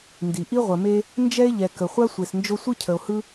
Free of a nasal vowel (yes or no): yes